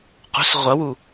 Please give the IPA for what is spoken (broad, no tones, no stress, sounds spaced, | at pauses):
q ṳ s ʁʷ ɐ w u